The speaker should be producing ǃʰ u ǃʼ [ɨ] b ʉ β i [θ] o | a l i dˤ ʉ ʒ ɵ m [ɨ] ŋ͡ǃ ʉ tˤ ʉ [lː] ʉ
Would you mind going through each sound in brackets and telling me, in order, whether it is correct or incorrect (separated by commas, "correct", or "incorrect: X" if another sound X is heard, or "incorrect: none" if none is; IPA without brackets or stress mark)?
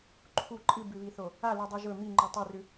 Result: correct, correct, incorrect: i, incorrect: r